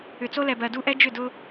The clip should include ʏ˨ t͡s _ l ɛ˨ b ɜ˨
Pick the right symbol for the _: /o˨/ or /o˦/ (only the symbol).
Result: o˦